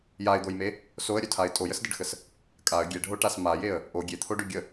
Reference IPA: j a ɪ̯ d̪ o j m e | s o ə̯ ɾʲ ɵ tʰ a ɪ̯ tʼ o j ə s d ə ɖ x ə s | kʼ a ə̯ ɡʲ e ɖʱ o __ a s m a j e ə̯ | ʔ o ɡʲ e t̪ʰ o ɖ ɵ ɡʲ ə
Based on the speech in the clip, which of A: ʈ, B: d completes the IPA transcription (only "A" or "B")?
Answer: A